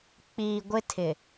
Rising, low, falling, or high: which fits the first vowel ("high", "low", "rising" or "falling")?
low